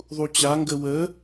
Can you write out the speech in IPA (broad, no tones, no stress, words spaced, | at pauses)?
ðˤut͡ɕa ŋɡəwə